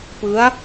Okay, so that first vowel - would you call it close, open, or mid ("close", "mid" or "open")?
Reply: close